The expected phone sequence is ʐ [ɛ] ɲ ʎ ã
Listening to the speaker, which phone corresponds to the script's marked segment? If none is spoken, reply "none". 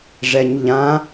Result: ɛ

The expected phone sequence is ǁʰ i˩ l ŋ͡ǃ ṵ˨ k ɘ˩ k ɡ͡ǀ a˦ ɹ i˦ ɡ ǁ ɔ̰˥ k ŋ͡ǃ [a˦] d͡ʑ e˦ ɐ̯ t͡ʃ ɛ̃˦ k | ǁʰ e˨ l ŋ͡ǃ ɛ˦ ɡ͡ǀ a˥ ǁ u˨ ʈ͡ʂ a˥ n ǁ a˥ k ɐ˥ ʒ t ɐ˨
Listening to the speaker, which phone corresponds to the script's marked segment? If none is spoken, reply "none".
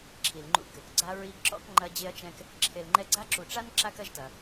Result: ɐ˦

